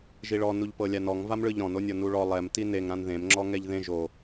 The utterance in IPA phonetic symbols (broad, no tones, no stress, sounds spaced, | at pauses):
ʒ i ɭ ɔ n u ʎ p ɤ lʲ a n ɔ ŋ v a m ɭ ɯ ʎ ɾ ɔ̃ n o nʲ ɔ n u ɭ ɔ lˠ ɛ m t i n e ŋ ɾ ã n ð ẽ m ŋ͡ǁ ɔ ŋ ɛ ʎ ð ẽ ʒ o